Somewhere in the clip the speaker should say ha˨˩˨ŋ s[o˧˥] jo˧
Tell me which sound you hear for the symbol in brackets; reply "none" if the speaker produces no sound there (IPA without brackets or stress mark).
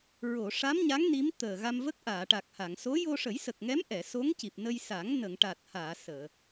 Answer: o˧˥